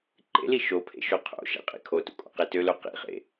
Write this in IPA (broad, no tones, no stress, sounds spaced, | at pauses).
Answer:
ǃ ḛ l i ʃ o pʰ ḛ ʃ o qʰ o̰ ʃ ɛ̰ qʼ ḭ kʰ o t ṵ kʼ o̰ q e t ø l o q ḭ χ ḛ